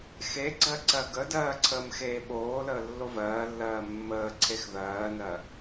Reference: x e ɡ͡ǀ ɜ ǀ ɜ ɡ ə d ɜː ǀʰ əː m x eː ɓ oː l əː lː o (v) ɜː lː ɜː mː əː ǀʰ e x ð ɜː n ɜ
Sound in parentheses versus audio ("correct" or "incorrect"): correct